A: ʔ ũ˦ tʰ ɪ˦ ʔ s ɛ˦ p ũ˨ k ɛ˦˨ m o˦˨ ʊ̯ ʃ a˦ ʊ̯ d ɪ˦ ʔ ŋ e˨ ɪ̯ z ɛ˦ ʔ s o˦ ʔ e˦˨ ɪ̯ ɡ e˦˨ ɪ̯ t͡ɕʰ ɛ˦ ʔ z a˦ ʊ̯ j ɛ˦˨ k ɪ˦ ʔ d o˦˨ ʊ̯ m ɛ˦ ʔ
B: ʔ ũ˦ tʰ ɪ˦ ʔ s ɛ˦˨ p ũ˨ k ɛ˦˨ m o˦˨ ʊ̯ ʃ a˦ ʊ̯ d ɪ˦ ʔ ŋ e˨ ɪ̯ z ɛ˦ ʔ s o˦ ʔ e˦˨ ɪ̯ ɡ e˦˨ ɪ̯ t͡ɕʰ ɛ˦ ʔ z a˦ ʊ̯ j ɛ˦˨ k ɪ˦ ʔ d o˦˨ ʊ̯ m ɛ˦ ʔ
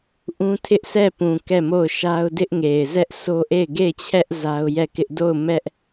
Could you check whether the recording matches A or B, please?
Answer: B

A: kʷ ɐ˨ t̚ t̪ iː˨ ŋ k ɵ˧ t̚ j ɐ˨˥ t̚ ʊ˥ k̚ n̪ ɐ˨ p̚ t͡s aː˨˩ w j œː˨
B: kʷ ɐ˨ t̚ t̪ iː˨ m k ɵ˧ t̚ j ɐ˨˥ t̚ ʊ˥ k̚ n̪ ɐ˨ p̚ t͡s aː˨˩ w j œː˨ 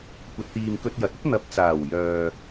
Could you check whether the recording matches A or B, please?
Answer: B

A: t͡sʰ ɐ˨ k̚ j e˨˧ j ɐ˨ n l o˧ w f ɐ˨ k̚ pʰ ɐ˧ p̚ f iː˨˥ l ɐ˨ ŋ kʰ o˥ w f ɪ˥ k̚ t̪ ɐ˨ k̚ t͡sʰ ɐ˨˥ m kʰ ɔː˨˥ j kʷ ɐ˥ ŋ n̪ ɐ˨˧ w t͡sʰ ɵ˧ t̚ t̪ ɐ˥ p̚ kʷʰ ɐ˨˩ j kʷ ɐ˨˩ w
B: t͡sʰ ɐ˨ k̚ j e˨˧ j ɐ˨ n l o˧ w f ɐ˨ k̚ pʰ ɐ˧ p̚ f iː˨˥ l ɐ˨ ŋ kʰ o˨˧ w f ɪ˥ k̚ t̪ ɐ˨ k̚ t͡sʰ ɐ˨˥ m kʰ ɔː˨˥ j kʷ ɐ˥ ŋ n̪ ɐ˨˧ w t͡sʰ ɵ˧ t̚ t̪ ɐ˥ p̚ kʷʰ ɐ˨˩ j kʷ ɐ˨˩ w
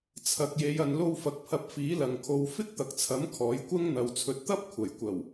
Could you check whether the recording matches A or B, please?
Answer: B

